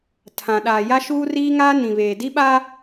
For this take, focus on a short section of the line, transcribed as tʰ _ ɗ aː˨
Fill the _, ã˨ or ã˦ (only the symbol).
ã˨